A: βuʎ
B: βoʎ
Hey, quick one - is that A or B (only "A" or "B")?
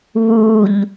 A